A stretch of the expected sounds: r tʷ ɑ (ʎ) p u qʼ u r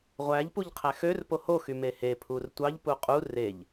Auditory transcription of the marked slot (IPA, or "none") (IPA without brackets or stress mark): ʎ